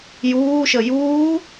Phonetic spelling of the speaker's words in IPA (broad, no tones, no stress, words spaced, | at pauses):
juːʃə juː